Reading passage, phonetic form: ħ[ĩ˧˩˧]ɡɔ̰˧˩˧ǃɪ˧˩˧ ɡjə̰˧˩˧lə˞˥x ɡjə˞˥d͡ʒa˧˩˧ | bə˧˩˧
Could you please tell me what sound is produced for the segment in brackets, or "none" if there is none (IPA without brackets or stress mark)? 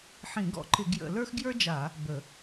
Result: ĩ˧˩˧